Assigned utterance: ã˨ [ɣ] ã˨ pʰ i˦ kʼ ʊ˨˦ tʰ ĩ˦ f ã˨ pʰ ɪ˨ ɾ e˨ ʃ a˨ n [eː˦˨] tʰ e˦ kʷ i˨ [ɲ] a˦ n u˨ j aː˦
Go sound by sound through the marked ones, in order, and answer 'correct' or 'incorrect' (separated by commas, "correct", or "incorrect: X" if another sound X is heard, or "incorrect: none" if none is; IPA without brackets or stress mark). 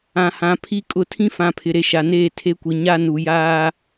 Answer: incorrect: h, correct, correct